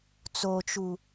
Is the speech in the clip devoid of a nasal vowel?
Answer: yes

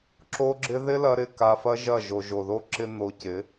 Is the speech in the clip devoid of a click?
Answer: no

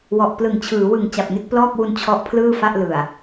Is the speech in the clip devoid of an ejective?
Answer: yes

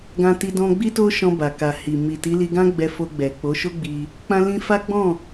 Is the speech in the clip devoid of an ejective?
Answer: yes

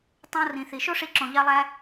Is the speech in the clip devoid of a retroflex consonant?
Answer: no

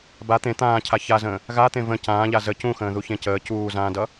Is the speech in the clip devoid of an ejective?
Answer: yes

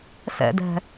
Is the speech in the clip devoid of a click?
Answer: yes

